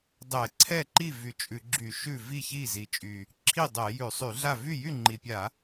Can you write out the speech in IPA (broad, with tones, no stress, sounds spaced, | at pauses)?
dˤ ɛ˧˩˧ ǀʰ ɛ˥˩ ǃ i˥˩ v y˧˩˧ t͡ʃʼ ʉ˧˩˧ ɡ͡ǁ y˧˩˧ ʃ ʉ˥˩ v i˥˩ ç i˥˩ z i˨˩ t͡ʃʼ y˨˩ | ǁʰ i˥˩ dˤ ɛ˧˩˧ j ʉ˧˩˧ sˤ y˧˩˧ ɮ a˥˩ v y˥˩ j y˥˩ ŋ͡ǃ i˨˩ pʲ a˧˩˧